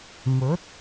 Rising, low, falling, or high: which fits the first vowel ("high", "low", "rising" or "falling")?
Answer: rising